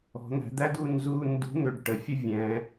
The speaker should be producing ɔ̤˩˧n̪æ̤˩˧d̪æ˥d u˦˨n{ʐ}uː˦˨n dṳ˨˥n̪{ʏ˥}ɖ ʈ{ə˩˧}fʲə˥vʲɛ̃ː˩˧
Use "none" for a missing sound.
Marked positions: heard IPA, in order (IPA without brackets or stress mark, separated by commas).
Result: z, ʏ˩˧, ə˩˧